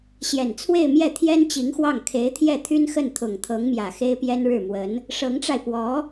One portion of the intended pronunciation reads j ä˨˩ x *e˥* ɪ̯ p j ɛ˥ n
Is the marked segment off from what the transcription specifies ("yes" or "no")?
no